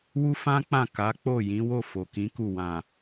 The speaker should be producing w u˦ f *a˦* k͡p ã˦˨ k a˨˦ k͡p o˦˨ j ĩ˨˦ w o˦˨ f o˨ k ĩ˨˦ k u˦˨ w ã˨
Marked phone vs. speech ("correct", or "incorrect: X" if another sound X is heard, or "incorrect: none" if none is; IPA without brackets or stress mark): incorrect: ã˦